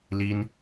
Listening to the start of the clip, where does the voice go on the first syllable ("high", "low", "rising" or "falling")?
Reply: high